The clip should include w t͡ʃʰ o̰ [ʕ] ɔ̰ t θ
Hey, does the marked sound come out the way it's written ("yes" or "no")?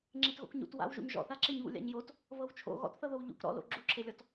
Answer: no